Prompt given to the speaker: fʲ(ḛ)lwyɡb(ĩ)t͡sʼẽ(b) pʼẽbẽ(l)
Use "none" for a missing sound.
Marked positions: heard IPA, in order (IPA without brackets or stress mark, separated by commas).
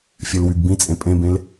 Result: e, ĩ, none, l